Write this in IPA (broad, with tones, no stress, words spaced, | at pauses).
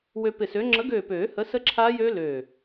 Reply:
wø˧pɪ˧˩sø˨˥ ŋ͡ǁə˨˥ɡøː˧˩pøː˨˩˦ hə˨˥ sə˦˥ǁʰaː˦˥jøː˦˥ løː˧˩